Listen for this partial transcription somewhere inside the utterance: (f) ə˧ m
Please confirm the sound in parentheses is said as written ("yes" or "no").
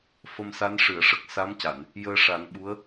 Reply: yes